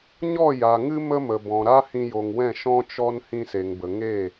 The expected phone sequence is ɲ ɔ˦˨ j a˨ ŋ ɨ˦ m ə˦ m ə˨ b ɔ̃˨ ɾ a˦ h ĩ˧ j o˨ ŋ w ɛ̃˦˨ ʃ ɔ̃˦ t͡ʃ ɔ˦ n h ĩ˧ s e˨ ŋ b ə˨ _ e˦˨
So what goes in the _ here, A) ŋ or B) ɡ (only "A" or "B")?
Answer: A